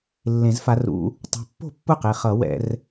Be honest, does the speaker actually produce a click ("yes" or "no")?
no